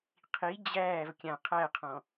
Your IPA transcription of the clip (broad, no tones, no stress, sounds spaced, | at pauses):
qʰ i d͡ʑ æː v kʲ ã qʰ æ qʰ ɔ̃